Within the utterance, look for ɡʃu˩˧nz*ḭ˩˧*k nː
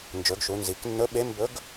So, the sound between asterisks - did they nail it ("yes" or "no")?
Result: no